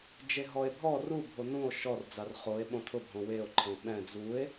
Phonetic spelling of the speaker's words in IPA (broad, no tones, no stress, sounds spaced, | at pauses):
d͡ʒ e ɦ ɔ e̯ bʱ ɔ r u bʱ o n ũ o̯ ʃ ɔ r d͡z a r χ o e̯ ɓ õ tʰ ʊ bʱ õ w e o̯ ǃʰ ẽ ɓ ɛ̃ d͡z u e̯